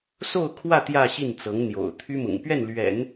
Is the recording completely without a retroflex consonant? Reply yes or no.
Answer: yes